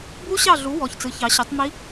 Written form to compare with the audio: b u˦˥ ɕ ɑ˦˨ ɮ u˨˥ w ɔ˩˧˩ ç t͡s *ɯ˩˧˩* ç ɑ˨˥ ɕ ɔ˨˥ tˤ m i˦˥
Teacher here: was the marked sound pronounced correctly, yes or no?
no